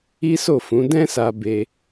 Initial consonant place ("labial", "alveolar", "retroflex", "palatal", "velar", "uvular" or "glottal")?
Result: alveolar